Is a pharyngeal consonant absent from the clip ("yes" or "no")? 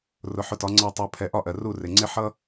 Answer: no